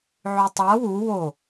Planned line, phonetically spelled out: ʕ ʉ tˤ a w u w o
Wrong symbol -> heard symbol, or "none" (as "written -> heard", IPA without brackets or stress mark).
none